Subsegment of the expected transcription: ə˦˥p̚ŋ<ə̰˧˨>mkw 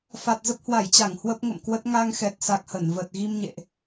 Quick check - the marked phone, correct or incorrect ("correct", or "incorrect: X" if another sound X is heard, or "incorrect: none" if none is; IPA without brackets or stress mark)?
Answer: correct